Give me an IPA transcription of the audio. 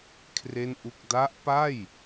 kʰre˥˩nʔu˥˩k̚ da˦˥ʔpa˥˩j

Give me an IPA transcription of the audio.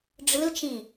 ɖ͡ʐɯlt͡ʃĩ

